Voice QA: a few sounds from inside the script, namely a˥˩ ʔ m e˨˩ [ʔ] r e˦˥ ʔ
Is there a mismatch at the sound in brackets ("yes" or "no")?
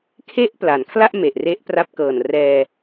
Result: no